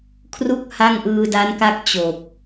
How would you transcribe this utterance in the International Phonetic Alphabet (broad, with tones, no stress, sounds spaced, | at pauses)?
kʰ r u˥˩ k̚ h a˥˩ ŋ ʔ ɯː˧ d a˦˥ n k a˥˩ k̚ t͡ɕ o˨˩ k̚